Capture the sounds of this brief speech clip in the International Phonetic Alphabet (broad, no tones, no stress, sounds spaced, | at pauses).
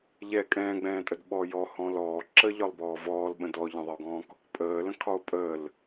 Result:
ʎ ɛ kʼ ɛ̃ː ɡ͡b ɛ̃ː tʼ ə d ɓ ɔː j ɔ h ɔ̃ l ɔː ǁ ə ʎ ɒ lˠ b ɔː v ɔː l ɓ ə̃ d ɔ ʎ ə̃ ðˤ ə o̯ ɡ ɔ̃ː k | pʼ əː l ə̃ kʰ ɒ o̯ pʼ əː l